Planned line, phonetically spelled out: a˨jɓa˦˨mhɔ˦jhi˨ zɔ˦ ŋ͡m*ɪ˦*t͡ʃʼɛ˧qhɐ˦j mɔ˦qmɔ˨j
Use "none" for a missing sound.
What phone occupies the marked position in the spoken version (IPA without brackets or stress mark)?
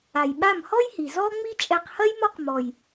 i˦